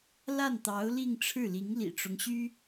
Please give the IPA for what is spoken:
la˥˩nt̪ɑ˧˥ʊ̯ li˥˧ŋʈ͡ʂʰɻ̩˥˩ li˧˥ŋlḭ˨˩ʈ͡ʂʊ˦ŋɕy˥

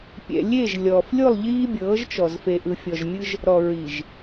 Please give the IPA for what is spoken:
pʲɛ̰˨lʲe˦˨ʒlʲɔː˨f lʲo˦˨lˠ ʎiː˦bʲɤː˨˦ʒt͡ʃɔ˨z fe˨ʔɯ˨fʲɔ˨ʒmʲɯ˦ʒ | ɾɔ˨ɹi˨ʒ

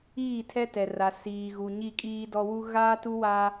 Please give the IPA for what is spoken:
iː˦˨tʰɛ˦tɛ˨ra˨ siː˨ɣu˨ ɲi˦˨kʼiː˦dɔ˦wu˦ ɣaː˦ tu˦waː˦

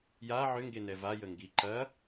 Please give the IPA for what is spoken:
ja ʕʏŋɡenɛ vajəŋɡi ǃɐ

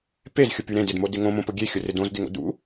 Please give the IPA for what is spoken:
pezxʲʊpy ɾẽd ɪdmodɪ ŋõmõpo ɡʲexʲʊrɪ dõzdɪŋo̰ dṵ

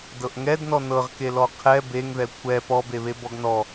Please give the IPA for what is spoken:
dɤʔŋɛdnɔ nɤʁkelɔ qʰɛ beŋðɛ kʷʰɛ pɔbeβe bɔɡnɔ

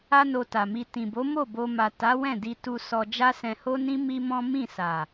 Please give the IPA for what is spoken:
a˦no˧ta˨mi˧ tĩ˨bo˨˦mo˦˨ bo˧ma˨ ta˨˦wɛ̃˦˨di˧tu˧ sɔ˧ d͡ʒa˦sɛ̃˧ho˦nĩ˦ mi˦mɔ̃˦ mĩ˦˨sa˨

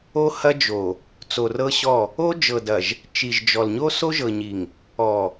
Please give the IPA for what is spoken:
o˦hɐ˦d͡ʒo˨ | t͡so˨rɤ˦ ɕɔ˦˨ | o˦d͡ʒɤ˨dɐ˨ʒ | t͡ʃi˨ʒd͡ʒɔ˨l ɲo˦so˦ʒɤ˨ɲi˨ŋ | ɔ˨

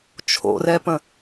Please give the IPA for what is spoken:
t͡ʃʰo̰rɛpə̃

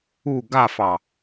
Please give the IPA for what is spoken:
u ɡafɑ

